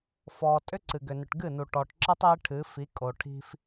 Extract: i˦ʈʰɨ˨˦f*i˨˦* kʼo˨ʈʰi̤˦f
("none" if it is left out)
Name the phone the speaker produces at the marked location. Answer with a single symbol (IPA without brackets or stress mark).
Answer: i˨˦